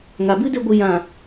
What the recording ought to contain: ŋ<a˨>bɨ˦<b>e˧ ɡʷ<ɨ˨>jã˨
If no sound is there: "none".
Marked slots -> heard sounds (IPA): a˨, d, ɨ˨

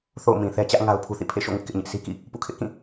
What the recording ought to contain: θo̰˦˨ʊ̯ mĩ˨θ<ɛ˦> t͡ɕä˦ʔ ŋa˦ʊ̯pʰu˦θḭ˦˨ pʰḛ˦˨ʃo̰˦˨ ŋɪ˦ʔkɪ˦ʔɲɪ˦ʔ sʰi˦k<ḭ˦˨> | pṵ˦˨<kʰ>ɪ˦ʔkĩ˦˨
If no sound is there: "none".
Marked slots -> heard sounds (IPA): ɛ˦, ḭ˦˨, kʰ

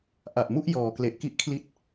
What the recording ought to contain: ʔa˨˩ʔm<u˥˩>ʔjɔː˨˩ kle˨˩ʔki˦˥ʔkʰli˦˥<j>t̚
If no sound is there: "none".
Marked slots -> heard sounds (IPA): u˥˩, none

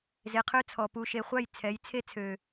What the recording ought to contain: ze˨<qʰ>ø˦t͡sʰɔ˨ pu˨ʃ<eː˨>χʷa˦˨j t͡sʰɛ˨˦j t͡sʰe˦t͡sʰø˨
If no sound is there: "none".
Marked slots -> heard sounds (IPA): qʰ, e˨

